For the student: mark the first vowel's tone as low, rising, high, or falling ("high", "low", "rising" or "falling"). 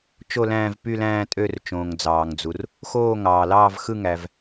falling